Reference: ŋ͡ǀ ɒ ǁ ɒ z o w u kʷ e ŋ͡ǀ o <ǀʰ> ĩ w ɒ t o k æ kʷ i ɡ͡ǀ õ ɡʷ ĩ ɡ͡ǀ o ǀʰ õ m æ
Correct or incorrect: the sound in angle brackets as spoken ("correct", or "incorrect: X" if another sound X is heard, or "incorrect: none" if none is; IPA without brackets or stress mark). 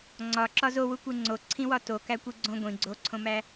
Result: correct